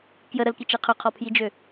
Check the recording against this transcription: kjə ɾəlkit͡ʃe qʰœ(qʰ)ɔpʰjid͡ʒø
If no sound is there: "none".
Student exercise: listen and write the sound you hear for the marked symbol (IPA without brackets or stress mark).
qʰ